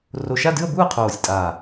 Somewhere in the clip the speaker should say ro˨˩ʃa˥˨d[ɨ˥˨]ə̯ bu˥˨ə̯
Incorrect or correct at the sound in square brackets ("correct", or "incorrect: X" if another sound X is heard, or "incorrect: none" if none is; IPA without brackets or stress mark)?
correct